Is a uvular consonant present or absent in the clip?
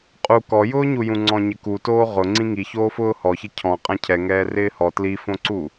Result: present